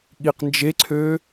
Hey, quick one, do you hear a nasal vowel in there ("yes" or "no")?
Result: no